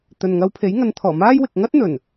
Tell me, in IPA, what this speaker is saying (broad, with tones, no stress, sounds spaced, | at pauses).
t̪ ɵ˨ n ŋ ɐ˧ w pʰ e˨˥ j ŋ ɐ˨˧ n t̪ʰ ɔː˨˩ m aː˥ j w ɪ˨ k̚ ŋ ɐ˥ t̚ n̪ ɵ˨˩ n